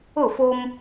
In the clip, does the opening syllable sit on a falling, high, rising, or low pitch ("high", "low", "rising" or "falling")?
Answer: falling